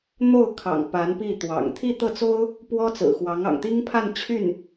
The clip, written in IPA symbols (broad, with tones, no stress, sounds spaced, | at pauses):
n̪ o˥˩ ʊ̯ kʰ ɑ̰˨˩ ŋ p a˧˥ n p i˥˩ t̪ w ɑ̰˨˩ ŋ t̪ʰ i˥˧ t̪ ɤ˥˩ t͡s o˥ ʊ̯ | p w ɔ˥ t͡s ɹ̩˨˩ x w ɑ˧˥ ŋ ɑ̰˨˩ ŋ t̪ i˥ ŋ pʰ a˥˧ n t͡ɕʰ y˥˩ n